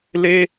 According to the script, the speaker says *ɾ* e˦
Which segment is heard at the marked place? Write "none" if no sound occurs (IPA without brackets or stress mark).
l